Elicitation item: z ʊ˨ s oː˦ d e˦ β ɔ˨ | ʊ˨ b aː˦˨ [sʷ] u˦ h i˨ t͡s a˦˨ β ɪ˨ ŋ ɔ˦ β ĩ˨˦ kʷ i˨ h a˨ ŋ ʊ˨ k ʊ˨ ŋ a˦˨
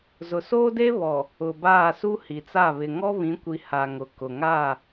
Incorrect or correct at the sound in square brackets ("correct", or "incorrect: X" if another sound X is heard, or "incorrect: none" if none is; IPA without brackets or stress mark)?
incorrect: s